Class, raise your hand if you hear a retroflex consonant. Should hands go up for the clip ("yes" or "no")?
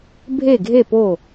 no